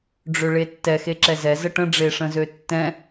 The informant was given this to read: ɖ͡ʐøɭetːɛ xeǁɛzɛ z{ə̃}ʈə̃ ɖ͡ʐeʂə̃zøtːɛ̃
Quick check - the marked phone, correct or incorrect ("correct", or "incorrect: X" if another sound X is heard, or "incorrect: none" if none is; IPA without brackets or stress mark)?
incorrect: ə